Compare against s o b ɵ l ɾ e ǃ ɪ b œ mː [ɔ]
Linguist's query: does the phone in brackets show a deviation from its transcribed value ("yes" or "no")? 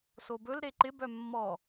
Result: no